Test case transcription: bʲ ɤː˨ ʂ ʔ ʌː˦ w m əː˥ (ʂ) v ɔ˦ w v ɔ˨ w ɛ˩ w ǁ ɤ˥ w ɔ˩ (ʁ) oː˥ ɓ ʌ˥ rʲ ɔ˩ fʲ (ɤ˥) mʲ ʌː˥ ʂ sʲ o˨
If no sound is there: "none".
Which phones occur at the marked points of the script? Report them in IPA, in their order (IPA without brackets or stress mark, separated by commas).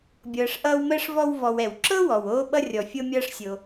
ʂ, w, ɤ˥